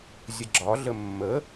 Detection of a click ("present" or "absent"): present